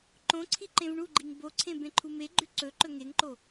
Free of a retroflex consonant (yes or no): no